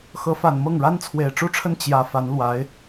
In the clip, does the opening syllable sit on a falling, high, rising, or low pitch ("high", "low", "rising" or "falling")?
rising